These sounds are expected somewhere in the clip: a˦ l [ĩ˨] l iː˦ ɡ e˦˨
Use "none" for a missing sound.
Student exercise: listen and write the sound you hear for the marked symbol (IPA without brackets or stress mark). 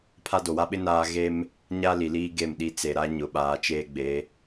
i˨